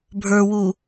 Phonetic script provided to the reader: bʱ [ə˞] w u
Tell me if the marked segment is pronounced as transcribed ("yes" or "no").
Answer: yes